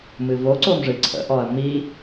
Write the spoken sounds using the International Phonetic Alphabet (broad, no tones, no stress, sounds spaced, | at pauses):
m ɨ v o ǀ o m ʐ ɨ ǀʰ ə̰ ʔ ɔ ɐ̯ m i